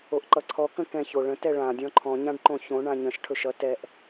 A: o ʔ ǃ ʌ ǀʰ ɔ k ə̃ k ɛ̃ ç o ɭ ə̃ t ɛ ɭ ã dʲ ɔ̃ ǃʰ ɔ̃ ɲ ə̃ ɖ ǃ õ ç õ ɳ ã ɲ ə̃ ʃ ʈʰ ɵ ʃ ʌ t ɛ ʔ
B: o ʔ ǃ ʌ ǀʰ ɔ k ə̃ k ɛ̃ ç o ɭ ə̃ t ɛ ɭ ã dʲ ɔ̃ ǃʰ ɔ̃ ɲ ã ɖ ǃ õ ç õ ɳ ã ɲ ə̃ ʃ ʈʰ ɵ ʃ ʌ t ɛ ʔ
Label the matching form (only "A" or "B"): B